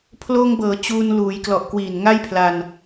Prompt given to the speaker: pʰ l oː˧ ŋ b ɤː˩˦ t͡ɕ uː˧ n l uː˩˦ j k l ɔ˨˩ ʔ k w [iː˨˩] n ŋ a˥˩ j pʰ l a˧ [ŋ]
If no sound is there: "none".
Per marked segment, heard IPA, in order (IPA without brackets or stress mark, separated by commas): iː˨˩, n